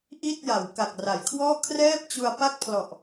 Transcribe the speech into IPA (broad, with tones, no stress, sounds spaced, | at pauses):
ʔ i˥˩ t̚ j a˩˦ w k a˨˩ k̚ r a˩˦ j kʰ w ɔː˥˩ kʰ r ɛː˥˩ p̚ t͡ɕ u˧ a̯ p a˥˩ k̚ pʰ l ɔ˨˩ ʔ